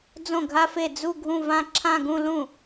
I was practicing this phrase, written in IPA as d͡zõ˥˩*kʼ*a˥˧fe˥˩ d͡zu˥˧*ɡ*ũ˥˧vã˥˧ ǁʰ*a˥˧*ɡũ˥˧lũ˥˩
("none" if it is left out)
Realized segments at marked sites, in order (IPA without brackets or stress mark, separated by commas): ɡʱ, ɡʱ, ã˥˧